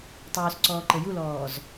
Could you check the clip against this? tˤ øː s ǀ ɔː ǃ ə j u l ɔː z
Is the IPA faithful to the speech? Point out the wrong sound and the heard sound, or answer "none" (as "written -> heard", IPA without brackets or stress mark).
none